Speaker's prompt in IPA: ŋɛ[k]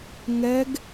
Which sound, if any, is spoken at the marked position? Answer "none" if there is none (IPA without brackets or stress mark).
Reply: ɡ